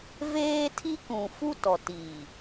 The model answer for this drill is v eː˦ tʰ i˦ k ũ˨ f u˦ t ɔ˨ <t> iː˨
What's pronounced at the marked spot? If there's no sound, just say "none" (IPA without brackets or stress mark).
t